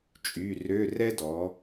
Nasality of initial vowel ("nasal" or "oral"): oral